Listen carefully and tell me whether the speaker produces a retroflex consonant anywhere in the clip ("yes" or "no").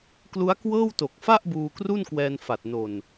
no